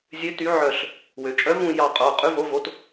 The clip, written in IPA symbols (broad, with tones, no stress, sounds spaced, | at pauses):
zʲ ø˧˥ t y˧˥ ʕ œ˦˨ ɬ | w ø˩˧ t͡ʃʼ œ˧˥ v ũ˦˨ j ɑ˦˨ qʼ o˩˧˩ qʼ ʉ˧˥ v o˧˥ v o˧˥ t